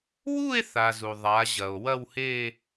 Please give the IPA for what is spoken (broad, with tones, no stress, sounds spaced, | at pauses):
w u˥˧ e̯ θ a˩ z u˩ ðˤ a˩˧ ʑ ɐ˩ o̯ w ɐ˥˧ w h e˥˧